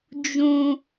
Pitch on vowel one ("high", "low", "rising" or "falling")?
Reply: high